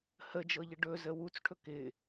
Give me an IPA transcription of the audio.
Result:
həd͡ʒɤʎɪ ɖɵzə wut͡sʈʰɵ kɪ

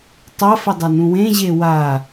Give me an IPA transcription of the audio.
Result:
tˤafɘdˤanũ wẽʑe wa

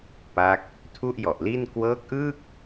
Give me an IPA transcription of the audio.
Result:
pa˦˥k̚ | tʰu˥˩ʔjɔ˨˩ʔli˥˩n kwɤː˦˥k̚ʔɯː˥˩k̚

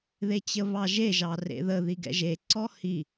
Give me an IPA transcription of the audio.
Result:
ðet͡ɕəβɑʒe ʒɑrḛðə ðiɡɛ̰ʒeǀɔ hi

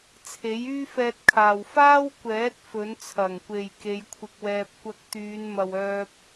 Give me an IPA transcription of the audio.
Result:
t͡sʰe˨˥jyː˥fɛː˧t̚kʰaː˨w faː˥wkʷɛː˨˥t̚ fɵ˨˥n t͡sʰɐ˨˩ŋkʷe˨j ke˨˧jkʷʰɪ˧k̚wɛː˧p̚ kʷɐ˧k̚t̪yː˨˧n mɐ˧wœː˥p̚

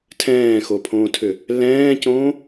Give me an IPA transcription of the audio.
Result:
tʰɛ̃ːxopʰõːtʰʏ | lɛ̃ːcõː

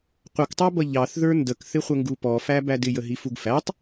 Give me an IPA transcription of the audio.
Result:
qʷʌktˤɑbʌ ʎɑθðə˞ ndəkθɪχʷəŋɡu pɔfæbæd ɪjəɦifuɡ fætˤ

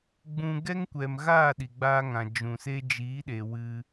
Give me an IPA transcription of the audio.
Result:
ɡ͡bũ˧ ɡɛ˦ŋkʷɛ˨mɣaː˦˨ ɗi˨ɡ͡baː˦ŋã˨ d͡ʒũ˨se˦ d͡ʒiː˨˦ɗe˨ wɨ˧

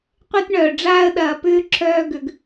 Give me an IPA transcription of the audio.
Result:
qʷe˦tɳœː˨ɖ͡ʐaː˦ə̯ ɗɐː˨pʏː˦ ǁʰœː˦ɡʏ˨ɡ

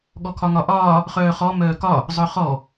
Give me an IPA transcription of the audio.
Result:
ɠɔkʰɒŋɒʔɒː | χœːχɔ mœːkɒ | zˤœχɔ

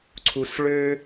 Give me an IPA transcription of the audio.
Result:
ǀʰu˧sɭø˦

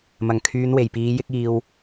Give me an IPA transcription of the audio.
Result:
mɐ˨˩ŋkʰyː˨˧nwe˨˩jpiː˨˧ jɪ˥k̚iː˧w

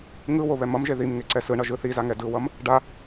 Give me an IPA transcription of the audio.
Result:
ŋɯwo βɛmʌmʒe ðim ŋeǀɛsɯɳʌ ʒɯθiza ŋɛdɯwʌm | ɖa

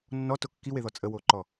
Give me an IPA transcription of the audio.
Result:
nːɔto kːiweðɔ t͡sʼəwoǃɔ

